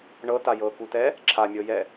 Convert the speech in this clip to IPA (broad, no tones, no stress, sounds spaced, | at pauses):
ɳ ɤ t a j ɤ k u t ɛ | ǁʰ a mʲ ɤ j ɛ